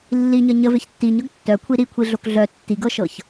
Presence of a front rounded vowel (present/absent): present